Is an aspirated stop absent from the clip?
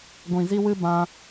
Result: yes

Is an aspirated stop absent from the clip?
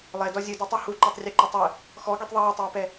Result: yes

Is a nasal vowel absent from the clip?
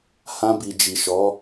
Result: no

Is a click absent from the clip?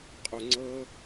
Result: no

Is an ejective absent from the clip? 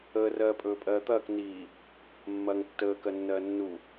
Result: no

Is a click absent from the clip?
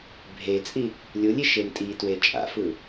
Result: yes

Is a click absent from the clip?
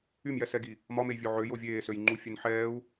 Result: no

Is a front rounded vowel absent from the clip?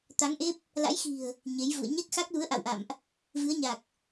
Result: yes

